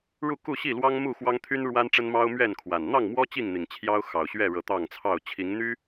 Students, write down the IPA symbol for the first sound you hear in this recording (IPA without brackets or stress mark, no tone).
ɻ